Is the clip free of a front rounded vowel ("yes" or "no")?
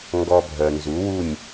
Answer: no